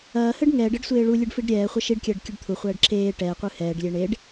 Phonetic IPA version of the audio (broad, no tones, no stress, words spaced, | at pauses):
ɐːhɘɖ ŋɛːɖɘɖsʷeː ɭulʲɨɖfiɖ ɾʲɛːχʷɐ ʃiɖkʲɐːɖkʲɨɖ t̪ʰuχʷɛːɖ ǁeː ʈɛːqʷɨ hɛːɖlʲe ɳeɖ